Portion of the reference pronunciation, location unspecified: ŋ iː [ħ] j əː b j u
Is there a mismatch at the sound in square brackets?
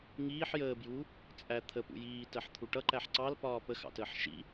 no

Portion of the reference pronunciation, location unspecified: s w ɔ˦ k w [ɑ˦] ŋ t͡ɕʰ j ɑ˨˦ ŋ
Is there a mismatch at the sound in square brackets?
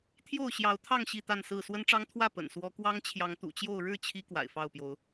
no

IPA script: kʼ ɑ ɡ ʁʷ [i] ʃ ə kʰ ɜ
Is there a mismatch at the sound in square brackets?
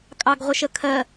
yes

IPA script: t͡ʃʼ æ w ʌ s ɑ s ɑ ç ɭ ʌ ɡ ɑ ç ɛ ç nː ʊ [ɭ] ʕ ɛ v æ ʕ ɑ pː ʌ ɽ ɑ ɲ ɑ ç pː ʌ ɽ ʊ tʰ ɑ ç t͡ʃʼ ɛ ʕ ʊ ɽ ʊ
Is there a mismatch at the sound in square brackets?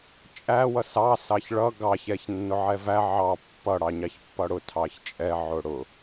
yes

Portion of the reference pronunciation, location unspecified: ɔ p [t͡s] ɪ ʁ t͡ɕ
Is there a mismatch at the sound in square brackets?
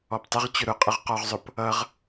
yes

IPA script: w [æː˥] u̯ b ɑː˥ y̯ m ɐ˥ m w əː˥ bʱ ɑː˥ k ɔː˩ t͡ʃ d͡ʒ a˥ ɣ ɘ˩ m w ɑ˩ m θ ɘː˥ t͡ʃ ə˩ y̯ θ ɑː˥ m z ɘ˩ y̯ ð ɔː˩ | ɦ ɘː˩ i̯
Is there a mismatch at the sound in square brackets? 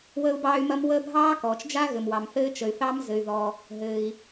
yes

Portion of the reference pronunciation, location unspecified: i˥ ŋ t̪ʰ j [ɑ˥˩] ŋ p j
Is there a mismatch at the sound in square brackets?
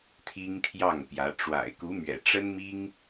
no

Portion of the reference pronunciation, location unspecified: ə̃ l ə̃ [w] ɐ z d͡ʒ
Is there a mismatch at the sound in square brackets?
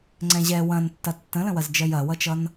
no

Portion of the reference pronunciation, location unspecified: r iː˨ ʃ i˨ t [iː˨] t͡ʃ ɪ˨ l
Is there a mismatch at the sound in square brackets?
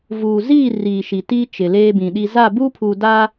yes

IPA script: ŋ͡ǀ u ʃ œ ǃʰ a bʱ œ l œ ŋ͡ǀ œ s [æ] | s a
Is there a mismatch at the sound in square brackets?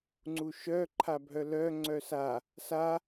yes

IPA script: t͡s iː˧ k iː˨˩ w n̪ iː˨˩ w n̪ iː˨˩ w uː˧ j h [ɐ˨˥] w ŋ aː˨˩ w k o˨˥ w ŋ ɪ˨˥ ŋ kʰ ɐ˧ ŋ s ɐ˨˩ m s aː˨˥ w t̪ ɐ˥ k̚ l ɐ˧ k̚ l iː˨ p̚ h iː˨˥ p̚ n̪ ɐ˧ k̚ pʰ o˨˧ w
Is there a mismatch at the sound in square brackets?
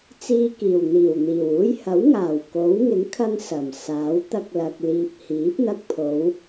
no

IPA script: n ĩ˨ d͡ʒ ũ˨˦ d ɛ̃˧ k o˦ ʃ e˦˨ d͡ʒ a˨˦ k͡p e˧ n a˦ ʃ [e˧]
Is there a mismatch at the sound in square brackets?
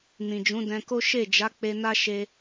no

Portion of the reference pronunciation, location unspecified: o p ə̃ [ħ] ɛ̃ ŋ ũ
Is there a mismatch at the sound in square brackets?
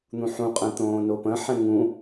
no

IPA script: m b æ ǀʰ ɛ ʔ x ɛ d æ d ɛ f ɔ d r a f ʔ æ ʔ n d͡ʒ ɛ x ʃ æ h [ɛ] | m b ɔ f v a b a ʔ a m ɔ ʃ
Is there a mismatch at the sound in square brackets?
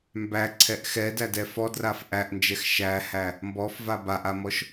yes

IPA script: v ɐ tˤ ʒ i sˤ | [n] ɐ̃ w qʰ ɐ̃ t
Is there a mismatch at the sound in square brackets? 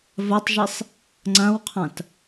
yes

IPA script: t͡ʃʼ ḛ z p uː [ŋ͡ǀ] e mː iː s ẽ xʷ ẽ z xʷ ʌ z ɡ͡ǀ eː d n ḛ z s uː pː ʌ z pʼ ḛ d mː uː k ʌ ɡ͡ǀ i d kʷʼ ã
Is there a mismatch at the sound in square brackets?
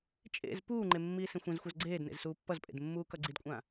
yes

